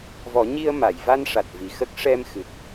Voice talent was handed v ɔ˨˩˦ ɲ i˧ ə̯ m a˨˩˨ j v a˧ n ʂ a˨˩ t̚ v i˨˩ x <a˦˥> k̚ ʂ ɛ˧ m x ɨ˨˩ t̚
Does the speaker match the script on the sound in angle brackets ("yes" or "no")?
no